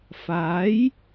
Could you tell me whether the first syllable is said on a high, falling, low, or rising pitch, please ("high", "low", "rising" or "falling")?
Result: rising